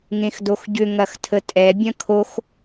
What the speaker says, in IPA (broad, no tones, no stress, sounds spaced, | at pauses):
ŋ ẽ x d o x ɟ ʏ ŋ ɐ x tʰ ə tʼ ɛ bʲ ɐ̃ kʰ o x